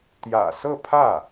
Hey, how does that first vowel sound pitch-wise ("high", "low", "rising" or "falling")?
low